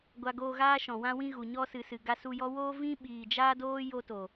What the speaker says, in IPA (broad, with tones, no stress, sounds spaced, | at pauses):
ɡʷ a˧ ɡ oː˧ ɣ aː˦ ʃ ɔ̃˨ w ã˧ w ĩ˧ ɣ u˨ ɲ ɔ˧ s ɨ˨ s ɨ˨ ɡ a˧ s u˧ j ɔ˦ w oː˦ v ĩ˦ ɓ iː˨ d͡ʒ aː˦ d oː˦ j o˦ t o˨